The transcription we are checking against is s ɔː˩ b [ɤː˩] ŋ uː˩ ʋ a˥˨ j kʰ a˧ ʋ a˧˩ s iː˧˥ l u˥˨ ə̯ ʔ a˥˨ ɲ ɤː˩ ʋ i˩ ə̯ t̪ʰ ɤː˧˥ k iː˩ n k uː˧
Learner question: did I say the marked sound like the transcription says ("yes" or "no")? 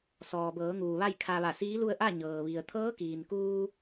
no